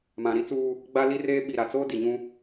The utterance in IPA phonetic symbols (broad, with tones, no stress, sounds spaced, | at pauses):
m ã˨ ɾ i˦ t͡s uː˦ | ɡ͡b a˦ l i˦ r eː˦ ɓ i˨ ɾ a˨ t͡s oː˦ d i˨ ɲ ũ˦